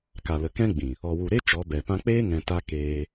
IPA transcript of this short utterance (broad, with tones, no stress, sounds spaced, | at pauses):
k a˨ l ə˨ k ɛ̃˦ ɡ͡b ĩ˨ | ɔ˨ w u˨ ɾ e˦ t͡ʃ ɔ˨˦ b ɛ˨ p ã˧ k͡p eː˦ ŋ ɛ̃˨ t a˧ k eː˧